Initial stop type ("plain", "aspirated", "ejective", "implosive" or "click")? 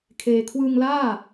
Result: aspirated